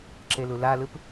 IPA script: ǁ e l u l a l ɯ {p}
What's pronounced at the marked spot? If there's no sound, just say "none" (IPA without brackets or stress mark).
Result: p